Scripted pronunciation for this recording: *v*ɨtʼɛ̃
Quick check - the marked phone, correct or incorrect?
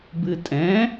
incorrect